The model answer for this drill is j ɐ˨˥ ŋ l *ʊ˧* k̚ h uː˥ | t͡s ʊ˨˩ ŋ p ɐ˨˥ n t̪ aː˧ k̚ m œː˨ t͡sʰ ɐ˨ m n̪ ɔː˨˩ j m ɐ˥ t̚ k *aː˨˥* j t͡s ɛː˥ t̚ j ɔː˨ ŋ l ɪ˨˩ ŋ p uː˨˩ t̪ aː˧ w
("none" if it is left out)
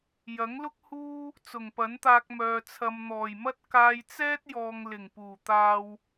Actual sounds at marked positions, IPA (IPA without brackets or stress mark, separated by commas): ʊ˥, aː˧